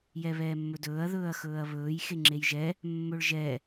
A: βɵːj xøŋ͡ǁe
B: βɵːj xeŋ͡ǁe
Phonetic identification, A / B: B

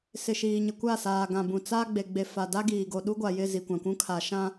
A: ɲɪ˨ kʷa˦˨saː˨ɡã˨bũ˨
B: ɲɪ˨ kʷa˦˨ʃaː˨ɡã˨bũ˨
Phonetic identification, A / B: A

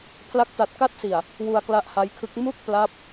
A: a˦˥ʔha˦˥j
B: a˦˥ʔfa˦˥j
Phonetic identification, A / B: A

